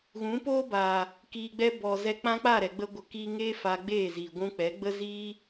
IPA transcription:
ɣ ũ˨˦ p oː˦ b a˨ | k iː˨ ɡ͡b ɛ˧ b ɔ˨ z ɛ˧ k͡p ã˦ k͡p a˦˨ ɾ ɛ˨ ɡ͡b ə˧ ɡʷ ə˨ k iː˧ ŋ eː˦ f a˧ ɡ͡b eː˦˨ z iː˨ ɡʷ ũ˧ k͡p ɛ˨˦ ɡ͡b ə˦ z iː˦

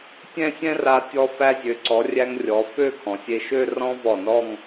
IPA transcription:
tʲ ɛ̃˥˧ sʲ ɛ̃˥ r a˧ tʲ ɔ˧ f æ˧ zʲ ø˩˧ ǀ ɔ˩˧ rʲ æ˧ ŋ rʲ ɔ˩˧ f ø˥˧ kʰ ɔ̃˩˧ sʲ e˧ ʃ ø˥˧ r ɔ̃˥ v ɔ˧˩ n ɔ˥˧ ŋ

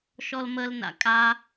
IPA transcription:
ʃ ɔ l m ə l n a̰ kʼ a

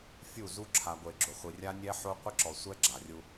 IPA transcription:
fʲ u˦˨ z u˦ ǁʰ a˨ ɡʷ e˨ ɡ͡ǁ ʊ˨ χʷ i˨ rʲ a˦ nʲ ɛ˦ ħ o˦ qʷ ɪ˦ ǁ ɔ˨ sʷ ɛ˦ ɡ͡ǁ a˨ rʲ u˦

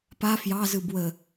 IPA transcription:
p a f j ɑ z ɯ b w ə

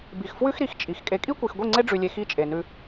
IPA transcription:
b i˨ x f w ʉ˦ x ɾ i˨ x t͡ʃʼ i˨ x kʼ e˨ kʼ i˦ kʷ i˨ x ɡʷ i˦˨ ŋ͡ǀ e˦ ɖ͡ʐ ʉ˨ lʲ e˨ x i˦ t͡ʃʼ e˨ n ʉ˦

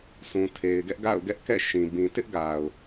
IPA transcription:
sʰ ũ˨ tʰ e˨ ɪ̯ ɡ ɛ˦ ʔ ɡ a̰˦˨ ʊ̯ ɡ ɛ˦ ʔ k ɛ̰˦˨ ʃ ĩ˨ b ĩ˨ t ɪ˦ ʔ ɡ a˨ ʊ̯

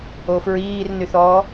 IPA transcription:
o f ɹ iː r n y θ ɔː

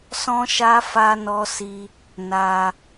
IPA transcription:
s ɔ̃˦ ʃ a˦ f a˦ n ɔ˦ s i˦ | n a˧

